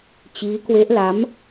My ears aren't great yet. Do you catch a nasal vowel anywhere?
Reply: no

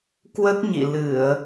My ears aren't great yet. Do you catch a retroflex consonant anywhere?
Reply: no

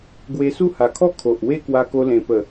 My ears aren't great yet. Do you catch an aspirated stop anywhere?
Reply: yes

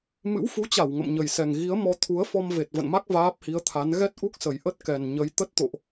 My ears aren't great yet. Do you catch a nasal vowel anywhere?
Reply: no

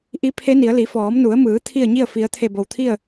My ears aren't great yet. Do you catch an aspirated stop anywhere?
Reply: yes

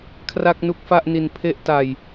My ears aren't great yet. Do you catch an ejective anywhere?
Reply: no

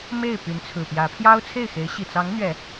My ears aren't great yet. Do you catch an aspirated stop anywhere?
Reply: yes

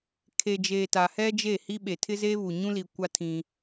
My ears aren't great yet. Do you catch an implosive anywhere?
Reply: yes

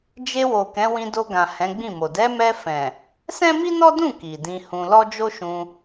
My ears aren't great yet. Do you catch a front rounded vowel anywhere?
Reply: no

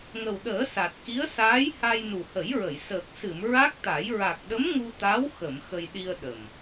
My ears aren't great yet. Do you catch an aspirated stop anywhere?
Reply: no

